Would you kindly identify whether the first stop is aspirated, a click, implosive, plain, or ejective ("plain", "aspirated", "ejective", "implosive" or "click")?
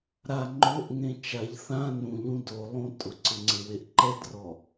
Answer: click